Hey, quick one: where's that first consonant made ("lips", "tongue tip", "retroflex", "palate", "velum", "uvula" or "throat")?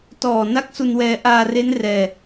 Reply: tongue tip